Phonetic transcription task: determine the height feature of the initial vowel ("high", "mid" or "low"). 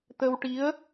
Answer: mid